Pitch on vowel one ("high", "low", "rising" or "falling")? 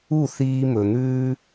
falling